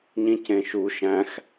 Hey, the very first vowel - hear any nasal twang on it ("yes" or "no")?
yes